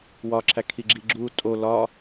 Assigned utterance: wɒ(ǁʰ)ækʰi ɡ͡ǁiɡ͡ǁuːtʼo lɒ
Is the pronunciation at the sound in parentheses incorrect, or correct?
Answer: correct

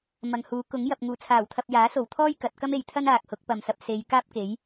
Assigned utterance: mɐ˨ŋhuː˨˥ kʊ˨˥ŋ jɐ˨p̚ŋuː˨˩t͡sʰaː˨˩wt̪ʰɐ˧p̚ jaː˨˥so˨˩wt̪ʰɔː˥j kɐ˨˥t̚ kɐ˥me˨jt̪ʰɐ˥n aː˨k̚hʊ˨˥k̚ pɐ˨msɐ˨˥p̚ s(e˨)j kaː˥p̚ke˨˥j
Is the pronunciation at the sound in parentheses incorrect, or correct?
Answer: incorrect: e˨˧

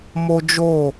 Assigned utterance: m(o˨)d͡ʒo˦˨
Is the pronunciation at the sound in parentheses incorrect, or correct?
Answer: incorrect: o˦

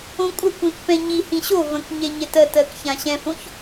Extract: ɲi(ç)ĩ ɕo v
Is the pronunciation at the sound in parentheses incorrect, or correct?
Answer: incorrect: h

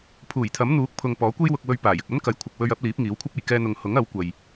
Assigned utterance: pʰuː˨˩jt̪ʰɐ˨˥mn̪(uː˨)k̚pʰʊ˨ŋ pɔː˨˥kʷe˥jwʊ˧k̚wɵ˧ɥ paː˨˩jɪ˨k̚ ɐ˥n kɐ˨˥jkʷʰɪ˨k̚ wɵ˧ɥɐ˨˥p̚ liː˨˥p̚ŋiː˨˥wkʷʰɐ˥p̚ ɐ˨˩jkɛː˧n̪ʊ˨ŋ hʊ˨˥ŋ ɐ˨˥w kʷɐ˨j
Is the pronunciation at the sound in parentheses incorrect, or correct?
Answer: incorrect: uː˨˥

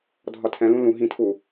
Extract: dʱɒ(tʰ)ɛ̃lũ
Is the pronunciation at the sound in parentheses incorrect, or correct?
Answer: correct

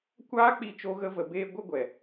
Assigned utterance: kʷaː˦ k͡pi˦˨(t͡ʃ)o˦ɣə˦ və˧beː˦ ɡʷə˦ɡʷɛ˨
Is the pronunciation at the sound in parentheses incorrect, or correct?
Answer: correct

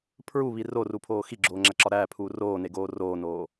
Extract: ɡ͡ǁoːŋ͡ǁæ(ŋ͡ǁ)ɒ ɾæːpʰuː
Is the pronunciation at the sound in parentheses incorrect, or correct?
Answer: incorrect: ǁ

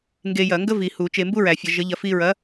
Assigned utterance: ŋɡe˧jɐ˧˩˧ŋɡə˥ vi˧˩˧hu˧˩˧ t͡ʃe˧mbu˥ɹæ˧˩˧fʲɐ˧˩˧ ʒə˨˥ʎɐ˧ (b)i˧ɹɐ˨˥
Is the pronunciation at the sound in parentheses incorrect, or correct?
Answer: incorrect: f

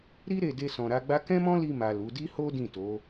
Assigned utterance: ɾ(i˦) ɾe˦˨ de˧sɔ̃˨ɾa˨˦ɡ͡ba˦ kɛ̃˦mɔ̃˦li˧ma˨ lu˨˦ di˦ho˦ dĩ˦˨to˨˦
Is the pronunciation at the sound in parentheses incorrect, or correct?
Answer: correct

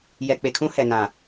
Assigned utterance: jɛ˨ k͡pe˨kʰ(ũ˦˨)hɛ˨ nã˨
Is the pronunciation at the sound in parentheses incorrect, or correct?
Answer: incorrect: ũ˦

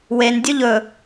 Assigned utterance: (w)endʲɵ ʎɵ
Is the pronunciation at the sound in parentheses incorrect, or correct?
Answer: correct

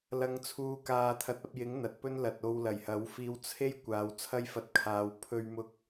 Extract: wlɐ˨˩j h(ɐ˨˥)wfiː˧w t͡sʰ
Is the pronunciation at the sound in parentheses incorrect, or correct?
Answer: correct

